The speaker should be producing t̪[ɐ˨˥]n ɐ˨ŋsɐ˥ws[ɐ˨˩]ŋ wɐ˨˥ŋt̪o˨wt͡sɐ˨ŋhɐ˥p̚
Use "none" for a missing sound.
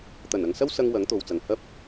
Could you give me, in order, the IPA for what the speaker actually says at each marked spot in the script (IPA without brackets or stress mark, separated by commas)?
ɐ˨˩, ɐ˧